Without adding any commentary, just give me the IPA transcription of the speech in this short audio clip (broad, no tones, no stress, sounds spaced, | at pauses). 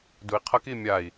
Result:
d u i̯ qʰ ʌ k i mʲ a i̯